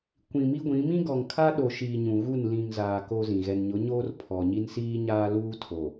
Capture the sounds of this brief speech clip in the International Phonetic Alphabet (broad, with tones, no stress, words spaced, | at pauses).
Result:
kʷĩ˨mi˦ɡʷĩ˨˦ mĩ˦ ɡɔ˨ŋkʰa˦ɗo˨ʃiː˨ ɲũ˨ɣu˦˨n lĩ˨ŋ zaː˨ ko˦zĩ˨ ɣɛ˨nɲʊ˨˦ɲoː˦r pʰɔ˨ɲi˦n siː˦ɲaː˦luː˦ tʰo˨